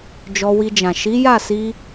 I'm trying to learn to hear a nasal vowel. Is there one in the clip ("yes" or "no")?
yes